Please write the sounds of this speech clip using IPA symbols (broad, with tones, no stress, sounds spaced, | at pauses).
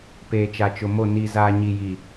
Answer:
p eː˨ t͡ʃ a˨ t͡ʃ ʊ˨ m o˦˨ n i˨ z aː˨ ɲ i˨ j i˨